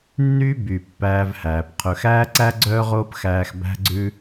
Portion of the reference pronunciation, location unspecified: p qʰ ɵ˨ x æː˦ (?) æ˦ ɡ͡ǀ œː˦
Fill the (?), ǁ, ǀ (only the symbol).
ǀ